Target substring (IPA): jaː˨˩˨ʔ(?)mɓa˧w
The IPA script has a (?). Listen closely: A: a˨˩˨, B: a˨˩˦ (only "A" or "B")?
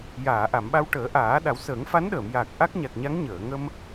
A